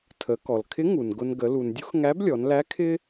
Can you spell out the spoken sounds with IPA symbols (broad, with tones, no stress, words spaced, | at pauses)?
tʰə˩˧ kɔ˩lkʰɪ˧˥ŋu˩n ɡʊ˧n ɡə˩˧lu˩ndʲu˥x ŋæ˧˥blʲɔ˩˧nlæ˧˥ kʰɪ˥